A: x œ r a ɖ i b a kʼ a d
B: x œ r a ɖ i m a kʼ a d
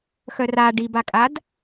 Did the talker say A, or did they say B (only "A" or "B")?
A